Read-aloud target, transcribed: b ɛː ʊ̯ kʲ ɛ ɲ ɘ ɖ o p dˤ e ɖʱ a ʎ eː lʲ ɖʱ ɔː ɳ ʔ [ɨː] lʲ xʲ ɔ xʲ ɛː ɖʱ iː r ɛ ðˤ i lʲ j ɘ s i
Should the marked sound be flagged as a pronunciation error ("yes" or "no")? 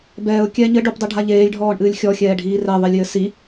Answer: no